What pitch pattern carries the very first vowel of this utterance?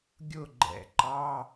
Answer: falling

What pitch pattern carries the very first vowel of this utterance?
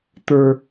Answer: high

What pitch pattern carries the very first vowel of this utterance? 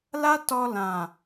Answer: high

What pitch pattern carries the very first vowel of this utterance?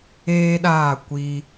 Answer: high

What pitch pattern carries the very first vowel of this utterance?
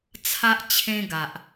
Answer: high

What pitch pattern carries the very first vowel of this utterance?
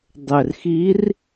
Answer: low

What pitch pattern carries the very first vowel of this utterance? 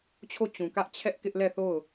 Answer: falling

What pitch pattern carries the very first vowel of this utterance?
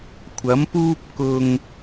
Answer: rising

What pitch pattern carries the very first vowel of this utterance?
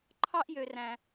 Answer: high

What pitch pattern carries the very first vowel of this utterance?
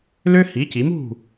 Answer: high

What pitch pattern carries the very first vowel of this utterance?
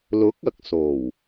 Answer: rising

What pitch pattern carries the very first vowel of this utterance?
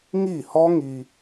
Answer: falling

